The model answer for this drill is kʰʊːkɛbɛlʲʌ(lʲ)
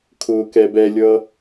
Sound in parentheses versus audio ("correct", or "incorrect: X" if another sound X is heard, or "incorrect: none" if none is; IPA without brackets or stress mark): incorrect: none